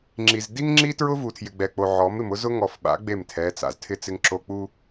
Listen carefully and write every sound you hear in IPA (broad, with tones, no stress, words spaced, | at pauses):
ŋ͡ǁi˨z di˦ŋŋ͡ǁi˦tɹʊ˦ vu˨tʰjɪ˨ɡ͡bɛ˨k͡po˨ ʕɔ˨˦m ɪ˨mʊ˦ zʊ˦ŋɔ˨fɓa̰˨˦ ɡ͡be˦˨mtʰɛ˨˦ t͡sa̰˨ztʰɪ˦ t͡sɪ˦ŋǁo˦ k͡pu˦